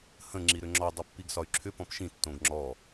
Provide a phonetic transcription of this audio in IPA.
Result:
h ə̃ ŋ͡ǁ i ɾ ʏ ŋ͡ǁ ɔ dˤ ɛ pː i ɡ s ɒ y̯ ǁʰ ʏ p ɔ̃ p ʃ ĩ tː õ ɡ ŋ͡ǁ ɔ

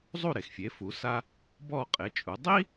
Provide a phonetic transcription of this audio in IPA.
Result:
zˤ u˥˩ ɾ e˩ x fʲ e˩˥ f u˩˥ s a˥ | b ɔ˥˩ qʼ e˩˥ t͡ʃʼ u˩˥ dˤ i˥

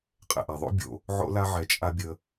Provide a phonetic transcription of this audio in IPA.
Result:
qʼ ɛ̰˨ ʔ a˨ ðˤ o̰˦ bʲ o̰˧ | ʕ o̰˦ l a˦ ʕ ɛ˧ t͡ʃʼ a˦ bʲ ə˧

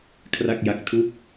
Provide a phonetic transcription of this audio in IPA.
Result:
kʰ r a˥˩ k̚ j a˦˥ k̚ tʰ u˦˥ k̚

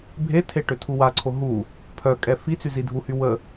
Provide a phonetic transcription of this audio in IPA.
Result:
bʱ e tʰ e ʈ ø tʰ u w a ǀʰ o ɦ u | pʰ œ kʼ ɛ f i t͡s y z i dʱ u h y w ə

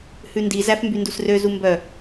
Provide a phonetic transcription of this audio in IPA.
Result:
h ʉ n d i z æ f m b y n d u s r ø z u m b œ

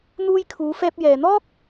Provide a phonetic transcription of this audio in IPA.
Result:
n̪ uː˧ j kʰ uː˨˧ f ɛː˧ p̚ j ɛː˨ n̪ ɔː˥ k̚

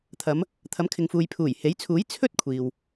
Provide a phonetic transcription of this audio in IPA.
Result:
t̪ʰ ɐ˨˧ m | t̪ʰ ɐ˨˥ m kʰ ɪ˨ ŋ f uː˨ j pʰ uː˨˩ j h e˨˥ j t͡sʰ uː˨˥ j t͡sʰ ɵ˥ t̚ kʷʰ iː˨ w

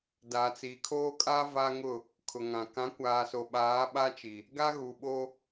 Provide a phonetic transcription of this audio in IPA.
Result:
d a˨ t͡s i˨ kʰ oː˦ kʼ a˦ v a˦ ŋ ʊ˦˨ | kʰ ʊ˨ ŋ ã˨ k ã˨˦ kʷ aː˨ s o˨ ɓ aː˨˦ ɓ a˦ t͡ʃ i˨ | ɡ a˦ ɣ u˨ ɓ o˦

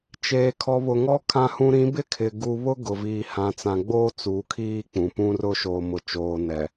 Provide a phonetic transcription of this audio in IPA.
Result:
t͡ʃ eː˨ kʰ ɔ˨ β ʊ˨ ŋ ɔ˦ kʰ ã˨ h ũ˨ ɾ ĩ˨˦ b ɪ˦ kʰ ɪ˨ ɡ u˨ β ʊ˦ ɡ ʊ˨ v iː˨ h ã˨ t͡s ã˨ ɡ͡b oː˦ t͡s u˨˦ kʰ iː˦ k͡p ũ˨ p ũ˦ r ʊ˦ ʃ oː˨ m ʊ˨ t͡ʃ oː˨ n ɛ˨

